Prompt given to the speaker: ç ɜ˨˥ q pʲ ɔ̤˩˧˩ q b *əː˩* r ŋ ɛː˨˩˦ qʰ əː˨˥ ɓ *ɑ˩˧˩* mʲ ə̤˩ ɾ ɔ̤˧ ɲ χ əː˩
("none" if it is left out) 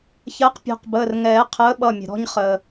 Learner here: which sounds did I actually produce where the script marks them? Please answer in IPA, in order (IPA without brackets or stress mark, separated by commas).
əː˩˧˩, ʌ˩˧˩